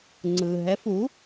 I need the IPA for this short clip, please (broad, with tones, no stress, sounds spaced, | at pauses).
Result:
ŋ͡ǀ ɯ˧ ɦ ɛ˧˥ f u˧˥